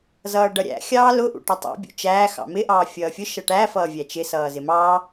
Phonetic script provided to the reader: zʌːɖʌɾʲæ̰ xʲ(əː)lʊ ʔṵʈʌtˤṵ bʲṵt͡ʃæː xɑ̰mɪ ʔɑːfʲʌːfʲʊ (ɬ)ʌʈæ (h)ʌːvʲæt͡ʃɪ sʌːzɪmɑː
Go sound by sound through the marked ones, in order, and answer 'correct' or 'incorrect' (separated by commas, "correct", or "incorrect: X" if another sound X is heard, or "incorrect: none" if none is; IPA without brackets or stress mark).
incorrect: ɑː, incorrect: ʃ, incorrect: f